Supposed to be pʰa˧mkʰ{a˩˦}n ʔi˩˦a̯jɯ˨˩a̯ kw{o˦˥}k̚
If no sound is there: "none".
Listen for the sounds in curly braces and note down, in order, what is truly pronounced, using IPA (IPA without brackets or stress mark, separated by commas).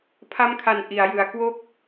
a˩˦, o˦˥